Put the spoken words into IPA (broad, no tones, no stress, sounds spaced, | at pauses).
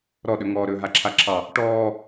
ɾ ɔ ɗ ɵ ŋ ɔː ɾ ɵː ɦ a ǁʰ a ǁʰ ɑ | ʈ ɔː